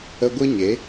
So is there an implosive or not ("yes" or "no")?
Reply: no